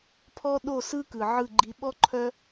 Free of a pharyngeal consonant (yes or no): no